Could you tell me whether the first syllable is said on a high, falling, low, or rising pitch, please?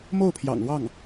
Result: falling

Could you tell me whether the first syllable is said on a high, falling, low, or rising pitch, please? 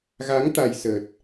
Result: rising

